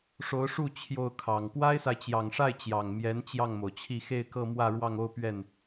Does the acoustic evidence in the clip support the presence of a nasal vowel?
no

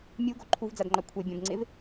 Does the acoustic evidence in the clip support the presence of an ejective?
no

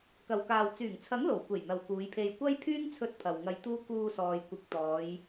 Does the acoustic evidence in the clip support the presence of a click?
no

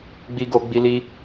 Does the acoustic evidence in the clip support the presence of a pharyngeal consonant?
no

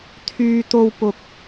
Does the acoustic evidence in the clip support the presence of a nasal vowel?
no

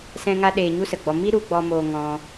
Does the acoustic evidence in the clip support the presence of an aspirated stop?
no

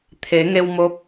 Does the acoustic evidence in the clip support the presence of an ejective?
no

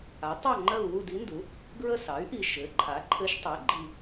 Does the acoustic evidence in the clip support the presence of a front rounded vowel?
yes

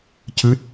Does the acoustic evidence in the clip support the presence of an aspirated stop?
no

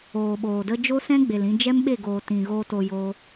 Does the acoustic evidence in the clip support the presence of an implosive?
yes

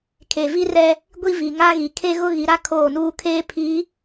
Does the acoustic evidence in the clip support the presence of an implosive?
no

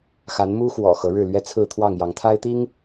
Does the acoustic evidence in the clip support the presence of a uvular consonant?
no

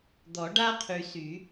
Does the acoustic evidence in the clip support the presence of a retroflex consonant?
yes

